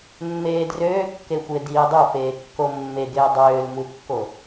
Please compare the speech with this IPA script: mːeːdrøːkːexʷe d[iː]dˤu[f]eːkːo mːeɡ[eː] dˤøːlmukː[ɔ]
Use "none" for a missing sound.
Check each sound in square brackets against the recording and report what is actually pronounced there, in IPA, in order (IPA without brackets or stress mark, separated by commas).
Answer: iː, f, eː, o